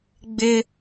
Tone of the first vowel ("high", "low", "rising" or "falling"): high